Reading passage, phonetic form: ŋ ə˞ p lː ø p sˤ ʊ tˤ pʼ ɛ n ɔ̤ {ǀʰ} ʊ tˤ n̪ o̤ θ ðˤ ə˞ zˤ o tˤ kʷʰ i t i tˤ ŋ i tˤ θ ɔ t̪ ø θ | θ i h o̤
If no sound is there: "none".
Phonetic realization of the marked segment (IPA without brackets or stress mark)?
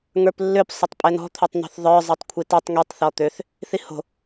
t̪ʰ